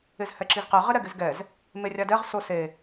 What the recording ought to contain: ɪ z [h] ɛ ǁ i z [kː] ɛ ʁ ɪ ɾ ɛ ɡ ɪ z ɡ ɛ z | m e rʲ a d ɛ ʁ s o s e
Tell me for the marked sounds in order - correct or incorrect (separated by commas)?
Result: correct, incorrect